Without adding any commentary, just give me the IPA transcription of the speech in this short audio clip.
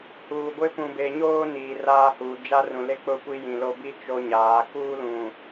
h uː˨ ɡʷ ɪ˦ p ũ˨ b e˨ ɲ oː˦ n iː˨ r aː˦ h uː˨ d͡ʒ a˦ r ũ˨ l e˦ k͡p ʊ˦ kʷ i˦ j ĩ˨ l o˦ b i˦ t͡ʃ o˦ ɲ aː˨˦ k uː˦ l ũ˨

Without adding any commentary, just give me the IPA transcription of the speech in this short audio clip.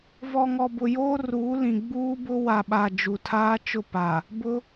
v ɔ˨ ŋ ɔ˨ b ʊ˨ j oː˦ r uː˨˦ l ĩ˨ ɡ͡b uː˦ b ʊ˦ w a˨ ɓ a˨ d͡ʒ u˨ tʰ aː˦ t͡ʃ ʊ˦˨ p a˨ | b ʊ˦

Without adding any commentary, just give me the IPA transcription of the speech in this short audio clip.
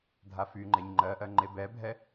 dʱ a f y ŋ͡ǃ ɛ ɲ ŋ͡ǃ ɜ ʔ ɜ ŋ͡ǃ e b ɛ bʱ ɛ

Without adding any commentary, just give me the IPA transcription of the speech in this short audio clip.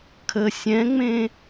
kʰ ə sʲ ɛ̃ ŋ͡m ẽ

